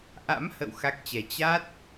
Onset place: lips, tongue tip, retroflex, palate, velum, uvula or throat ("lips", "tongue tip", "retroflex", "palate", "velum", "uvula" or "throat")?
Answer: throat